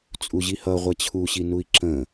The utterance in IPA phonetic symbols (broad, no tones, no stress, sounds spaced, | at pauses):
t͡sʼ u ʑ i h ʌ ʁʷ ɛ t͡ɕʰ u ɕ i n u i̯ ǁ ə̃